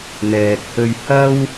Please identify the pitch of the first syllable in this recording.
low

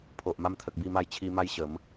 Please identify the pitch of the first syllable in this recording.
low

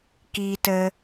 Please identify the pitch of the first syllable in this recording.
high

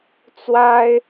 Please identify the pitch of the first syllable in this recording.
high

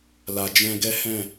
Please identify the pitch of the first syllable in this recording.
low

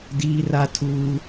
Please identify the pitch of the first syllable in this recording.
high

